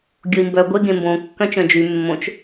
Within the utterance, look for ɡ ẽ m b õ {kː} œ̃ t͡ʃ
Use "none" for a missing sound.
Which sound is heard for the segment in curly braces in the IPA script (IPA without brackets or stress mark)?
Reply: kː